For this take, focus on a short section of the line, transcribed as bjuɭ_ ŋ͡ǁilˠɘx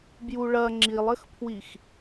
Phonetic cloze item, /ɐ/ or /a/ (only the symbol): ɐ